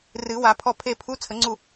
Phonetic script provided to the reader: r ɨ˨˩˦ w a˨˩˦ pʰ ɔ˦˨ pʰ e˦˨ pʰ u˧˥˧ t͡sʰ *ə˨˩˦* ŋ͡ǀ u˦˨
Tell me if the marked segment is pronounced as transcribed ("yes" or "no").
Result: yes